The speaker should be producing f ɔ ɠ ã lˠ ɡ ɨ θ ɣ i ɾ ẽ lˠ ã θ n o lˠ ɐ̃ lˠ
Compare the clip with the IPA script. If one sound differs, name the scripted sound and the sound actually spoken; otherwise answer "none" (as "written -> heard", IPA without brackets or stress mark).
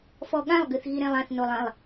none